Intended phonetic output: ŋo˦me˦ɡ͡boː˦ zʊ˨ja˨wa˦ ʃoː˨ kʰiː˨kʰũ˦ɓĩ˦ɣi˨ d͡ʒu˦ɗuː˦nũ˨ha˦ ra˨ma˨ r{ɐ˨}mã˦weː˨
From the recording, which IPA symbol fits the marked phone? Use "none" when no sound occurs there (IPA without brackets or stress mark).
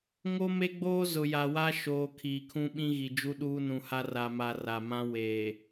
a˨